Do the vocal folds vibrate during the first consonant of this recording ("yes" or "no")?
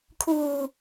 no